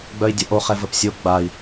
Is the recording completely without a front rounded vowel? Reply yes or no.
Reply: no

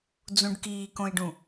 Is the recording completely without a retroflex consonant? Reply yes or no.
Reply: no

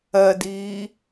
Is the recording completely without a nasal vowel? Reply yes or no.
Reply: yes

